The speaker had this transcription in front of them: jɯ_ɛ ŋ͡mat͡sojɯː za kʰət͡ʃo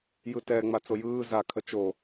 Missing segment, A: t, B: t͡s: A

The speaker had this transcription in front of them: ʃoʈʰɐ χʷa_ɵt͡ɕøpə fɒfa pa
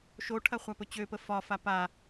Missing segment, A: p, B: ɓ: A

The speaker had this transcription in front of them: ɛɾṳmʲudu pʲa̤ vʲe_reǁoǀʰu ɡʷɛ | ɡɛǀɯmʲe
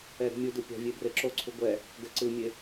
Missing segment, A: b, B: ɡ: A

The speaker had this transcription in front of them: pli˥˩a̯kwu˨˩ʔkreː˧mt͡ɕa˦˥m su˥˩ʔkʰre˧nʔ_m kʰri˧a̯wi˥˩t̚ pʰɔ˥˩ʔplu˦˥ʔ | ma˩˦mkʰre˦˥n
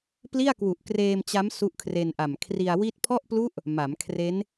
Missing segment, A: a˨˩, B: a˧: A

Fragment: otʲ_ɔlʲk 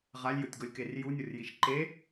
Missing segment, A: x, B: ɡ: B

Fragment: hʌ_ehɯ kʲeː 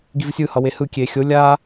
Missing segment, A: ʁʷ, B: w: B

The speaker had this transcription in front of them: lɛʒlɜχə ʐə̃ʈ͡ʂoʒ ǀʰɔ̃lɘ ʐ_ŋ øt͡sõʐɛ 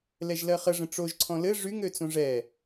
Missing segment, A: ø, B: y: B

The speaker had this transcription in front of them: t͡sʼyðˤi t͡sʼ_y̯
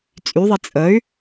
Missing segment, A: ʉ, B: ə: B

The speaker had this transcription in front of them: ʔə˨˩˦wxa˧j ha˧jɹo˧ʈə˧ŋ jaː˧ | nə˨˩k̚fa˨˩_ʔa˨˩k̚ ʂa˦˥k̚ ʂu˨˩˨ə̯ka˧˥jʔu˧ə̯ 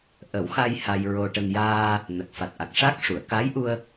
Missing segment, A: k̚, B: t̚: B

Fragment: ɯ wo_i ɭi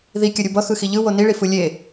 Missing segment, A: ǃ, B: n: B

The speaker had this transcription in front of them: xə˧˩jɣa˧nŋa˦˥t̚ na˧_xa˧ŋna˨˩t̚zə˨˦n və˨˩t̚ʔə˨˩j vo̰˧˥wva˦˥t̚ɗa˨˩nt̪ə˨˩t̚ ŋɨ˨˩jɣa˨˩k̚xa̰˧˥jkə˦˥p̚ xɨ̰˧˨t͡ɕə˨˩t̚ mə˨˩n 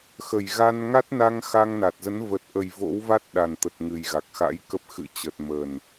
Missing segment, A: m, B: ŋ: B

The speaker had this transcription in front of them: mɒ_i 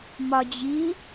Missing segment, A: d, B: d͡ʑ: B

